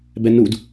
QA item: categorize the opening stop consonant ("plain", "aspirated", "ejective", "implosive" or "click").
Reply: plain